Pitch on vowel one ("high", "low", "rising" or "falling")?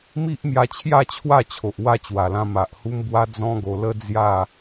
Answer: high